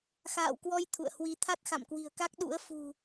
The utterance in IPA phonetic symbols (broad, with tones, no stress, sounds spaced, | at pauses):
x a̰ː˧˨ w k w ɔ˧ j t̪ʰ ṵ˧˨ ə̯ h w i˧ t̪ʰ a˦˥ t̚ x a̰˧˨ m k w i̤˨˩ ə̯ k a˦˥ k̚ ɗ ṵ˧˥ ə̯ f ṳ˨˩